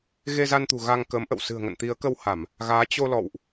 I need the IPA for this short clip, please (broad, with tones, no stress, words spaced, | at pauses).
ɣe˧za˧nt̪ṳ˨˩ ɣa˧ŋkəː˨˦mʔə̰˧˨w sɨ̤˨˩ə̯ŋə̰˧˨nt̪i˨˦ə̯ kə˧wha˧˩˨m | ɣaː˨˦ t͡ɕo˧lɔ̰˧˨wʔ